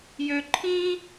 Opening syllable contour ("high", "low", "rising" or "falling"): high